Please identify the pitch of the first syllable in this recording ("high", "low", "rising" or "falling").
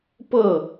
falling